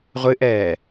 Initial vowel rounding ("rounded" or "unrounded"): unrounded